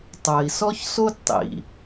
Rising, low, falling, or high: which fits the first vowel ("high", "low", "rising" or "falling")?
low